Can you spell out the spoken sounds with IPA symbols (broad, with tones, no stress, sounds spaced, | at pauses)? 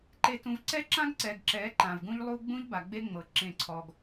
ǃ e˨ t ũ˨ v ǀ ɛ˦ ǁ ã˦ ɡ ǀ ɛ˨ ɡ ǁ ɛ˨˦ ǃ ã˨ v ɡ ũ˦ ʎ lˠ u˦ ɡ͡b ũ˦ ʎ b a˨ ɡ͡b e˦ ŋ͡m ɤ˨ ǁ ẽ˦˨ ǀʰ ɔ˦ ɡ